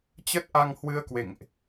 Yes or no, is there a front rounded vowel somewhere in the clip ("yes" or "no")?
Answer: no